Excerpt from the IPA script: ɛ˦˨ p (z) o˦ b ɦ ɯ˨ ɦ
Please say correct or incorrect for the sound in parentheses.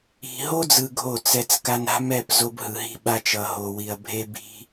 correct